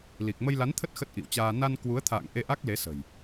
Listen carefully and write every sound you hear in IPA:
l i˨˩ k̚ m ə˧ j l a˨˦ n t̪ʰ ə˦˥ t̚ x ə˦˥ t̚ ʔ ḭ˧˨ w t͡ɕ aː˧ n a˧ n k w u˨˦ ə̯ t̪ʰ a̰ː˧˨ ŋ ʔ e˧ ʔ a˦˥ k̚ l e˨˦ s ə̤˨˩ j

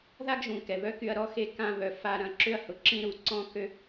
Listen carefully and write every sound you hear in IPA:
ð a˥ ɡ ʒ ũ˩ k ɛ˩ β œ˥ k y˧ ɐ̯ ɾ ɔ˥ x e˧ k ã˧ β œ˩ f a˧ ɾ ɐ̃˧ ǁ ʏ˥ ɐ̯ h ʊ˩ ǁ ĩ˥ ɾ u˩ ǀ ɔ̃˥ k ø˥

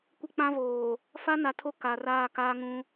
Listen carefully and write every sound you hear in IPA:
kʷ ɪ˦ k͡p ã˦ v oː˨ | f a˦ n a˨ tʰ o˦ k a˨ r aː˦˨ k aː˦ ŋ ũ˦

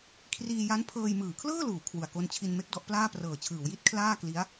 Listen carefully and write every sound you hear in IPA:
kʰ r iː˧ j a˦˥ n pʰ ɤː˧ j m ɯː˩˦ kʰ l ɤː˥˩ l uː˩˦ kʰ w u˨˩ a̯ k o˧ n t͡ɕʰ i˧ n m e˦˥ k̚ d ɔ˦˥ ʔ p l aː˥˩ p r ɤː˨˩ t͡ɕʰ ɯː˩˦ w j i˦˥ t̚ kʰ l aː˥˩ k l i˦˥ a̯

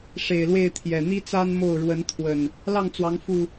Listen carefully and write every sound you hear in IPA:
ʂ e˨˩ ɪ̯ l w e˥˨ ɪ̯ t̪ʰ j ɛ˨˩ n̪ i˦ t͡s a˦ n m o˥˨ ʊ̯ ɻ w ə˨˦ n t̪ʰ w ə˨˩ n | l ɑ˥˨ ŋ t͡s w ɑ˨˦ ŋ f u˨˩

